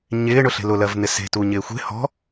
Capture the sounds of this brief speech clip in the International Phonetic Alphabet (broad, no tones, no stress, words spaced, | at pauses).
ɲɪːɳʊɬe̤ lʊlɜvn̪ɪ se̤tuɲɪː xʷe̤ hɔ̤